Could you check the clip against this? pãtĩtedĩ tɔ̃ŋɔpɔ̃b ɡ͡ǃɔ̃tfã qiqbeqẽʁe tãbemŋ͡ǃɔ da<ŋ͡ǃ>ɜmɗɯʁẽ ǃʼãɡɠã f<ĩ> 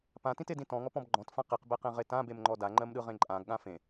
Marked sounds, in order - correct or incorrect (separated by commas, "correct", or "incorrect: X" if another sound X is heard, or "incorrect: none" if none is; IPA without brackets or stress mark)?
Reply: correct, incorrect: ẽ